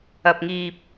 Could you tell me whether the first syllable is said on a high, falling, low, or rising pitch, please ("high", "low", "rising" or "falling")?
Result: low